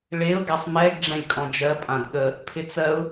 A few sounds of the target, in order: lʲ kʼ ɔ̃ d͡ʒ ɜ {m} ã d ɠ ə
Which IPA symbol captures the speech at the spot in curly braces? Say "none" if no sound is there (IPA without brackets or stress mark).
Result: pʼ